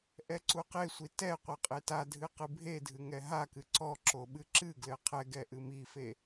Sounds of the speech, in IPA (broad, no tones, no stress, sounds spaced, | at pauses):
ʔ ɛ ǀ u q e sʷ i t ɛ qʷ ɛ qʼ e t a dʱ ɨ q ɨ bʱ e dʱ ɨ ŋ ɛ ɦ a k ɨ ǀ ɔ ǁ o ɓ ɨ ǁ ɨ ɡ l ɘ qʰ ɛ ɡ ɛ ʔ ɨ m i f e